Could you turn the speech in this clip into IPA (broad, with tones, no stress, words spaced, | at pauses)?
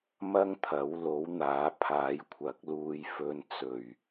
mɐ˥ŋt̪ʰɐ˨˥w lo˨˥w n̪aː˨˥ pʰaː˨˥jkʷʰɐ˨˥k̚luː˧jfɵ˧n t͡sɵ˨˩ɥ